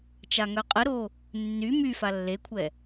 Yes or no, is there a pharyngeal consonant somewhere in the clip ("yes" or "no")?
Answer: no